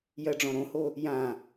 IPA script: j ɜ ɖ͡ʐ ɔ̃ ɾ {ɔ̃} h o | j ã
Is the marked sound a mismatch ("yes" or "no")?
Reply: yes